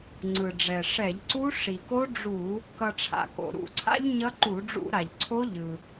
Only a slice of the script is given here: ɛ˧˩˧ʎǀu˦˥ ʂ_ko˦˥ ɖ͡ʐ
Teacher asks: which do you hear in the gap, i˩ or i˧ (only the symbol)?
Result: i˩